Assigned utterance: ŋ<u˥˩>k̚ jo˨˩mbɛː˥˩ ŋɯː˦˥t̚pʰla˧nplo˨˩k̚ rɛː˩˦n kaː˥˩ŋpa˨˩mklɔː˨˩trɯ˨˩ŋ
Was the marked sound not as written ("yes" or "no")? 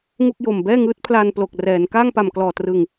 no